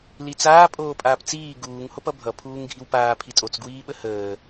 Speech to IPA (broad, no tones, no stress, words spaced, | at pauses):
lit͡saː pʼoːpʼaːpt͡siː ɡuːŋ hopʌbʱʌ pʰuːŋɡʱiwpaː pʰitʼot͡s ɡwiːɓəhəː